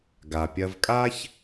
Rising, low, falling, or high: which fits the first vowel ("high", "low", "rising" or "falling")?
low